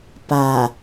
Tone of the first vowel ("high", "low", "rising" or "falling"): low